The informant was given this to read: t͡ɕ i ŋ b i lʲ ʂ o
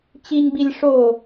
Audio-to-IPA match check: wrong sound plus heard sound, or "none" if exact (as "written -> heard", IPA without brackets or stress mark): none